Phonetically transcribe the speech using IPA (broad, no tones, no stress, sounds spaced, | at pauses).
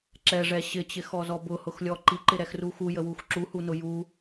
ǁ ɛ ʐ ɛ ɕ ɪ t͡ɕ ɪ x ɔ z ɔ b ʊ h ʊ x lʲ ɔ ǃ i ǃ ɪ ɾ ɛ x r u x u j ə w u x ǁ u h u n ʊ j u